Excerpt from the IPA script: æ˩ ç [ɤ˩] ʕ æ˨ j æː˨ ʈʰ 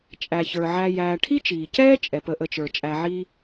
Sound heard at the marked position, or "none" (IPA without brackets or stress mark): ə˞˩